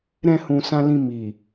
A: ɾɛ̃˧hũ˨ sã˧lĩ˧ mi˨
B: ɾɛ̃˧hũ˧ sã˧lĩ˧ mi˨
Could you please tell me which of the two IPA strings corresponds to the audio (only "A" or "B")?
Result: A